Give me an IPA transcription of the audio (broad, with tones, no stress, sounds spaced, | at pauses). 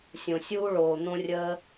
sʲ õ˨ sʲ uː˦ ɭ oː˨ n̪ õ˧ rʲ əː˧